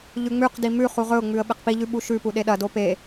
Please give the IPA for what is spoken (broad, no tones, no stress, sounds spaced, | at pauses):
ʎ ʉ ŋ͡m ʉ q d i m ʉ χ u ʁ ɵ ʊ̯ ŋ͡m ʉ ə̯ ɓ e q p i ʎ ʉ ɓ u ʃ ʉ p u ɗ e ɗ ɐ d o p e